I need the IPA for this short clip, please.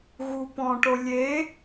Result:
ɣ u p ɔ̃ ʈ o lʲ e

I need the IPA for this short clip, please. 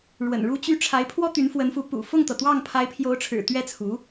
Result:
ɻ w ə̰˨˩ n ɻ u˥ t͡ɕ y˥ ʈ͡ʂʰ a˧˥ ɪ̯ pʰ w ɔ˥ t̪ y˧˥ n f w ə˧˥ n f u˧˥ p ṵ˨˩ f ʊ˥˩ ŋ t̪ ɤ˩ t̪ w ɑ˥˩ ŋ pʰ a˧˥ ɪ̯ pʰ j o˧˥ ʊ̯ ʈ͡ʂʰ ɻ̩˨˩ t̪ ɥ ɛ˥˩ t͡sʰ u˧˥

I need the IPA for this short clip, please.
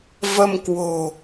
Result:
v ə˧ m k w o̤˨˩

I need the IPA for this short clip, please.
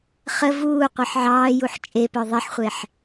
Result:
χ ə v uː qʷ ɤ ħ ʕ ɑː j u ħ t͡ʃʼ e p œ ðˤ e ħ χʷ e ħ

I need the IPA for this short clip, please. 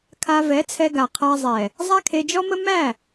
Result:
kʰ a˧ v ɛ˨˦ t͡sʰ ɛ˧ ɡ a˨ qʰ a˧ zˤ ɛ˨ | zˤ a˦ kʰ e˧ d͡ʒ ɔ˦ m ə˦ m æ˦˨

